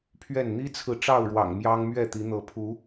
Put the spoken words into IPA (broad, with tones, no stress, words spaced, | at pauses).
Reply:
pʰɥɛ˥˨n n̪i˦t͡sʰɹ̩˨ ʈ͡ʂɑ˥˨ʊ̯ɻwɑ̰˨˩ŋ mjɑ˦ŋmɥɛ˥˨t̪i˨˦ n̪ɤ˨˦pʰu˨˦